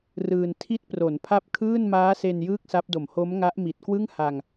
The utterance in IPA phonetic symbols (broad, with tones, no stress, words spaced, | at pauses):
rɯː˧n tʰi˦˥t̚pro˩˦npʰa˦˥p̚ kʰɯː˥˩nmaː˦˥se˧n jɯː˥˩k̚sa˦˥p̚do˨˩m ho˦˥mŋa˦˥ʔmi˨˩t̚kwɯ˥˩ŋ ha˧ŋ